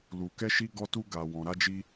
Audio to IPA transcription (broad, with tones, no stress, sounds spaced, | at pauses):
l u˨ k ɛ˧ ʃ i˧ ɡ ɔ˧ t u˧ ɡ a˨ w ɔ̃˨ ɾ a˧ d͡ʒ i˧